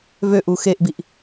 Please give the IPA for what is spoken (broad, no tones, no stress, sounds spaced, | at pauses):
v ø ʔ u x e ʔ b i ʔ